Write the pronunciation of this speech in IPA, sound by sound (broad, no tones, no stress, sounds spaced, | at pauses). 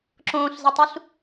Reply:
ǁ õː ɬ z ɪ tˤ u ɬ